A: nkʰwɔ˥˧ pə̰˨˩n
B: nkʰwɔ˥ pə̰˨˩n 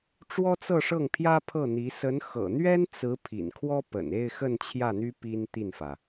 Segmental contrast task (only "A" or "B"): B